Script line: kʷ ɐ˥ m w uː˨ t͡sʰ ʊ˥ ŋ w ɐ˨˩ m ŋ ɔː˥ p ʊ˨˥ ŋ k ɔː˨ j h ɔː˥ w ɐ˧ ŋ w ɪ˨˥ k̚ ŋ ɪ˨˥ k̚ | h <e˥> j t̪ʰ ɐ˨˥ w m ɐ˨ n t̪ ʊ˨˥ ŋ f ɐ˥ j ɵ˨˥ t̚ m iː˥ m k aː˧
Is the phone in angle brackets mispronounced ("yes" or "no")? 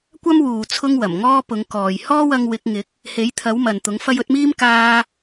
yes